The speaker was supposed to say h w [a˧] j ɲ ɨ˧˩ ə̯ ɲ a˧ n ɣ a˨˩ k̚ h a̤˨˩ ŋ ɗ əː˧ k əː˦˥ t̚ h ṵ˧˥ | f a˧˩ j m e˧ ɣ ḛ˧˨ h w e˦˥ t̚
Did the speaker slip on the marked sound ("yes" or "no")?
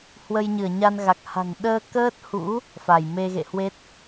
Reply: yes